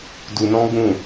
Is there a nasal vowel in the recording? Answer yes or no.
yes